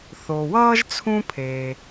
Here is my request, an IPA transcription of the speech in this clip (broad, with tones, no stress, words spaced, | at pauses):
θo˩wʌː˥ʒ t͡sʰũ˥pʰeː˩